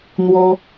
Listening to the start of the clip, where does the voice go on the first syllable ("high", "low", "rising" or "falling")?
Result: high